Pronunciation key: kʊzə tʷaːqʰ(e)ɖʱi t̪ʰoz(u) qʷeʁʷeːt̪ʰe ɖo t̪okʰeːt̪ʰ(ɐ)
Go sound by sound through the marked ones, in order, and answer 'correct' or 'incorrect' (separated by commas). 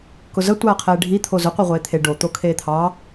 incorrect, incorrect, incorrect